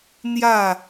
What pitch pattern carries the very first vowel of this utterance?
falling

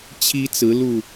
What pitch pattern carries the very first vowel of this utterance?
high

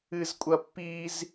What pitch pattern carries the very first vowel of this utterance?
high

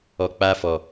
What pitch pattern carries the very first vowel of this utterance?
low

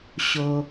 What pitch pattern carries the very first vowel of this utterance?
low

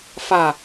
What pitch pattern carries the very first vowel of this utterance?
low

